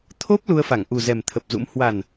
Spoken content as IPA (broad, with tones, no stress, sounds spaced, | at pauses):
t̪ʰ o˦˥ p̚ l u˧ ə̯ f a˧˩ ŋ ʔ u˨˩ z ɛ˨˩ m t̪ʰ ə˨˩ p̚ z ṵ˧˥ m h w a˨˩ n